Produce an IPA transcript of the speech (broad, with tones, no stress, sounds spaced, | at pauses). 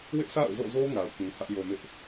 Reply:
w ɪ˦ ʔ sʰ a̰˦˨ ʊ̯ z o̰˦˨ z o˦ ŋ a˨ ʊ̯ k ĩ˨ h ä˦ ʔ j o˨ m ɪ˦ ʔ